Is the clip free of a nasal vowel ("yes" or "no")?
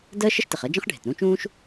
no